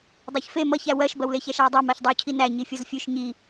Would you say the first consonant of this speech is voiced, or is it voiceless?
voiced